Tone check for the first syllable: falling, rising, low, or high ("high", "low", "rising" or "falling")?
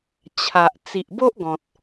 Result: low